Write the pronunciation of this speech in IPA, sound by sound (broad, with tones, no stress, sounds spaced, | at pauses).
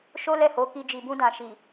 ʃ o˦ l ɛ˦˨ h o˨˦ k i˧ d͡ʒ i˧ b ũ˦ d ã˧ ʃ i˨